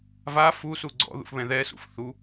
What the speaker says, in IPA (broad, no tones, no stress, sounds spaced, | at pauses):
v a f u s u ɡ͡ǀ ɔ̰ ð ṵ f β ɛ̃ ð ɛ s ṵ f θ u